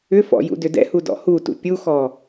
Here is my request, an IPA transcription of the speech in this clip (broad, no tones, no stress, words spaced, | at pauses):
ʏfɔ̰ jṵdʏdɛ̰hu dɔ̰hutṵ pʲuxɔ